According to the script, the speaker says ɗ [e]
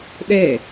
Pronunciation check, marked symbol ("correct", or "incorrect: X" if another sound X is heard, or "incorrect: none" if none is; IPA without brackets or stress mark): correct